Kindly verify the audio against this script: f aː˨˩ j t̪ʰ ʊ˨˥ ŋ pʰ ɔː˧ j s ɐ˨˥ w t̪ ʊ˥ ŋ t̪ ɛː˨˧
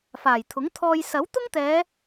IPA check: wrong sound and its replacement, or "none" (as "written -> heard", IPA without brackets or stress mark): pʰ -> t̪ʰ